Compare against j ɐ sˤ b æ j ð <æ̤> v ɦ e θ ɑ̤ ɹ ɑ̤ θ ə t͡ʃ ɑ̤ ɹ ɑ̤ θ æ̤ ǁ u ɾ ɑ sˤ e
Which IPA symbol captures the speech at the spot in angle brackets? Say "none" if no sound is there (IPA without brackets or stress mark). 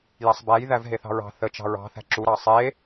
æ